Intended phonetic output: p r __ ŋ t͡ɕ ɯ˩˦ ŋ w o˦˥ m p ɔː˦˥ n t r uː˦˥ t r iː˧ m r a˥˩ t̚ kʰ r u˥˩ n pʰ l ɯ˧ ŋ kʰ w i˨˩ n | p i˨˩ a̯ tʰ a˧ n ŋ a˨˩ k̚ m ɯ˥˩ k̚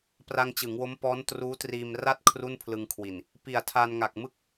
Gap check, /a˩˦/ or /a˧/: a˧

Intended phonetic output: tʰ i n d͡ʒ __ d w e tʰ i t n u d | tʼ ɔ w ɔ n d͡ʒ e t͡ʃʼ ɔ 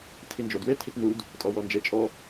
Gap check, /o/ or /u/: o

